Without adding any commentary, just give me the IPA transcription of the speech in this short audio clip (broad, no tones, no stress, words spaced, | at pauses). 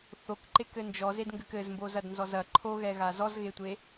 θokǃekɘ nd͡ʒɔzedŋɡɘk ɘzmbozɐdnzɔz ɐ ǃʰoɣɛɣa zɔzɣetʷe